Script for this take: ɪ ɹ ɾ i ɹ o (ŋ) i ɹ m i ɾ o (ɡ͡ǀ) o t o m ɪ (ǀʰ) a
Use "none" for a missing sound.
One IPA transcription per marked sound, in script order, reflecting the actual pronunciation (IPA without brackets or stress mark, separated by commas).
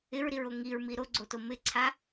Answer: ŋ, ɡ͡ǀ, ǀʰ